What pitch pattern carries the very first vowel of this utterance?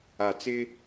low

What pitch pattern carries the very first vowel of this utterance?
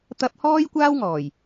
high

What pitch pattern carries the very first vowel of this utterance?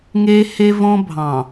high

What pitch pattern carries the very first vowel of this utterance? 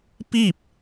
falling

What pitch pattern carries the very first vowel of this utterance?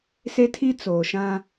high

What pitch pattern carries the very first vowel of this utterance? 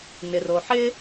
low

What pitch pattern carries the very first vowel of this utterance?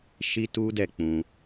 high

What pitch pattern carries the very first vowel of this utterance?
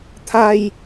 low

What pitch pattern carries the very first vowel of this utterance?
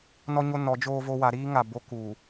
high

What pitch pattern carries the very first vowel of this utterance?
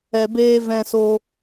low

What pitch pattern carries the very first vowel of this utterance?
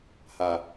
low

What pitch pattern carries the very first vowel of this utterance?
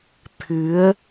rising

